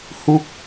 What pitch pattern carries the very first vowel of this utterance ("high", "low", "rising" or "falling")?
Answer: falling